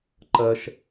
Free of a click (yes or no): no